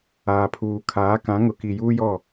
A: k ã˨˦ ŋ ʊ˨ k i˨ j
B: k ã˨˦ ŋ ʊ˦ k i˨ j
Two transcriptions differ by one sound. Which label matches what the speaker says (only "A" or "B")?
A